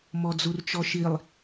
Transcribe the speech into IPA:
m ɔ d͡z u r t͡ʃ ɔ ʃ i lˠ

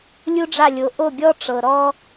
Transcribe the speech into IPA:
lʲ u˥ ɖ͡ʐ a˥˩ lʲ o˩˥ ʔ o˥˩ ɡʲ ɔ˥ ʈ͡ʂ ɤ˩ ɾ ɔ˥

